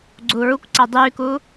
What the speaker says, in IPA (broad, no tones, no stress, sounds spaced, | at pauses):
ɡ͡ǀ uː ɹ u kʷ ǀ a dˤ yː k uː